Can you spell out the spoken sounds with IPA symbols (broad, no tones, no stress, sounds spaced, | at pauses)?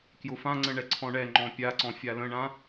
k j ʊ f ã ŋ͡ǀ ə̃ ɳ ɛ ǀʰ ɔ̃ ɳ ɛ ŋ͡ǃ ɔ̃ pʲ a ǀ ɔ̃ fʲ a l ə̃ ɳ ã